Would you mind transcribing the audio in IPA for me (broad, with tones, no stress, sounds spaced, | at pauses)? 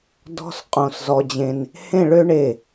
d ɔ̤˥ s qʼ õ˧˩ s z ɔ˧ d͡ʑ ẽ˧ n | h ẽ˥˧ ɭ ø˥ ɳ e˧˩